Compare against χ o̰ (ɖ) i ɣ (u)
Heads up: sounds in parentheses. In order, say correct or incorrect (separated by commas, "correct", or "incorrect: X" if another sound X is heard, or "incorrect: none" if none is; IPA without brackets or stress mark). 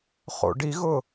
correct, incorrect: ʊ